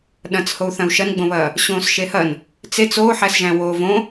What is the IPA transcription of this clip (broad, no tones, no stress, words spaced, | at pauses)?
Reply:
ɗɐ̃t͡shou̯ θɐ̃u̯ʃɐnɡ͡bõβɐː | ɕõːsʃehɐn | t͡set͡s oːħæsʒæ̃ woːvõ